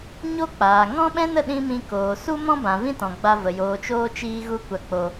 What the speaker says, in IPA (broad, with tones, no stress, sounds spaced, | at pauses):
ɲ o˦ k͡p aː˨ ŋ ɔ̃˦ ɓ ɛ̃˦ n ə˦˨ ɗ ĩ˧ m ĩ˧ k oː˨ s u˦ m ɔ̃˦ b ã˨ v ĩ˦ t ɔ̃˨ ɡ͡b a˧ v ə˨ j oː˨ t͡ʃ oː˧ t͡ʃ iː˧ ɣ u˦ kʷ a˧ k͡p o˧